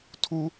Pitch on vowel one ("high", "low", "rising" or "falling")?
high